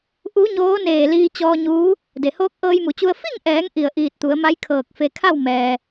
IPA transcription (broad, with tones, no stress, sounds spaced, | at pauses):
ʔ u˧˥ ɲ oː˧˥ n eː˧˩ l iː˧ t͡ɕ ɔː˧ ɲ uː˧˥ | d e˩ h oː˧˥ k̚ ʔ ɤː˧ j m u˩˧ t͡ɕ u˧ ə̯ f i˥˨ ŋ ʔ ɛː˩˧ ŋ ʔ i˧˩ ə̯ ʔ iː˧˩ t̚ t̪ u˩˧ ə̯ m a˧˥ j kʰ ɤː˧˩ k̚ f e˧ kʰ a˥˨ w m ɛː˩